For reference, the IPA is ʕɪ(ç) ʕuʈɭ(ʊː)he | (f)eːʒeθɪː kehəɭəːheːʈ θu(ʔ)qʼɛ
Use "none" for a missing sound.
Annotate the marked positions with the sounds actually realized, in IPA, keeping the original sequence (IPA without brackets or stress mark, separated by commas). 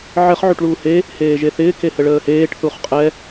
χ, uː, h, χ